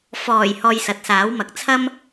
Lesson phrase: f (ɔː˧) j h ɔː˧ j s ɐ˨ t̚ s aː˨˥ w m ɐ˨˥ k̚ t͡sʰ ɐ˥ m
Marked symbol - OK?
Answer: no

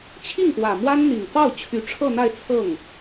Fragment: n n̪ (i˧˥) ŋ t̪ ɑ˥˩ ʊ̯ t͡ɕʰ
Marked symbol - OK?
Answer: no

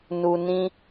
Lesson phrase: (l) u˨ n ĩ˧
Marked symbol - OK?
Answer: no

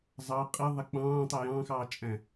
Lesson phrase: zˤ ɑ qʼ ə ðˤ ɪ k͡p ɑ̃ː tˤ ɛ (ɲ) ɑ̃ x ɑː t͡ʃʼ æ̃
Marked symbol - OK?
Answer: no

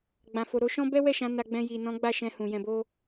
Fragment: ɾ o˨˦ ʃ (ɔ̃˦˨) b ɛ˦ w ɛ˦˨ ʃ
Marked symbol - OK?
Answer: no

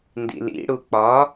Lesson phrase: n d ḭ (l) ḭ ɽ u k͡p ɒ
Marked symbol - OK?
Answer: yes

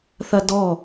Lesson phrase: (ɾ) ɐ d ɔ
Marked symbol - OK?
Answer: no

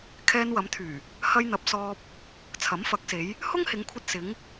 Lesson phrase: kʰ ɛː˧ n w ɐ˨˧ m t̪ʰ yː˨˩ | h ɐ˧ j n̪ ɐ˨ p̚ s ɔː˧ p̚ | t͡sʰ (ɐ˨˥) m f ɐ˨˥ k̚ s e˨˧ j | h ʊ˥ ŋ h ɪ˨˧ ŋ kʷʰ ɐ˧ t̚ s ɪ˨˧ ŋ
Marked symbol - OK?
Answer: yes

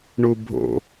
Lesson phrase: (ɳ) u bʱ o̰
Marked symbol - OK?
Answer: yes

